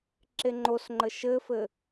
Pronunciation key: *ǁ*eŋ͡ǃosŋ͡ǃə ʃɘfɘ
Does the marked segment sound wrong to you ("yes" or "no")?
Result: no